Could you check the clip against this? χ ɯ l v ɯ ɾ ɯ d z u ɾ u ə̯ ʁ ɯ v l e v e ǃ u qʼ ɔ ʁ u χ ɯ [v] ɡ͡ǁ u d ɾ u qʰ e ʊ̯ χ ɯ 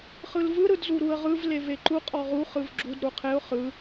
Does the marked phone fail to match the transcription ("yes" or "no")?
no